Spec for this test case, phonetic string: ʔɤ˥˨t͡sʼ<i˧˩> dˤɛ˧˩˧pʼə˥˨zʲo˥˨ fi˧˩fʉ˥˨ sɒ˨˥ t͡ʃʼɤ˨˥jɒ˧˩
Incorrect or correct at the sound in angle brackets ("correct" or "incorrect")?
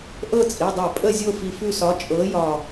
incorrect